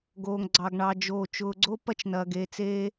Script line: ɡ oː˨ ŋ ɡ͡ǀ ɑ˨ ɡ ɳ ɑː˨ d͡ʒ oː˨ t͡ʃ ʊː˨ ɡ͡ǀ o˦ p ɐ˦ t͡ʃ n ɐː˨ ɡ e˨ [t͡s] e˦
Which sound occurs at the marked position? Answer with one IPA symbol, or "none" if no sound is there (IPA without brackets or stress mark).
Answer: t͡s